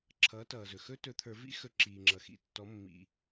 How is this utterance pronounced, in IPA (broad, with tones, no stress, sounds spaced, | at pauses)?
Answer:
ǁʰ ʌː˩˥ t ʌː˩ z ɵ˩ x ɵ˦˥ t ɵ˨˩˦ t̪ʰ ə˞˨˩˦ v ḭ˦˥ x ɵ˩˥ ǁ iː˩ ŋ͡ǁ ʌ˩ x ḭ˩˥ tː ɔ˩˥ mː ḭ˩